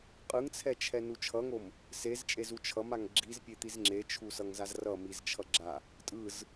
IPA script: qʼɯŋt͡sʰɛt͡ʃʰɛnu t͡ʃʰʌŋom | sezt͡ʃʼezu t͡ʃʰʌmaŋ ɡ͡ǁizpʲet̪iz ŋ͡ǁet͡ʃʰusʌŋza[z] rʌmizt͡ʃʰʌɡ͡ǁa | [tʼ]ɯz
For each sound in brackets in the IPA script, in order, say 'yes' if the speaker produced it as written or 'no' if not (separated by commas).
yes, yes